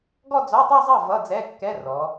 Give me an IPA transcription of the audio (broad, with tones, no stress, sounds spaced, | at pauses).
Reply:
ɡ ɔ˥˧ d͡z ɔ˧˥˧ tˤ ɛ˥˧ zˤ ʌ˥˩ v ʌ˧˥˧ d͡z ɛ˧˥˧ kː ɛ˧˥˧ r ɔ˩˧